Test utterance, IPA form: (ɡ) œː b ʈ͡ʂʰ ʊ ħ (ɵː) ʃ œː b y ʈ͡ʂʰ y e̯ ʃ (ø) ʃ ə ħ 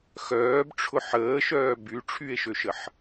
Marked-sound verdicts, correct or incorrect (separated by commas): incorrect, incorrect, correct